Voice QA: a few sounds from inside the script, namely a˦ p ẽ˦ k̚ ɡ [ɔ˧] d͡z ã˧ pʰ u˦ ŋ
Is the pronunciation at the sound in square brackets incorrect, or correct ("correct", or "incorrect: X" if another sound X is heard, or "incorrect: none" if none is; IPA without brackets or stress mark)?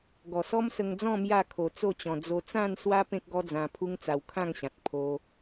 incorrect: ɔ˦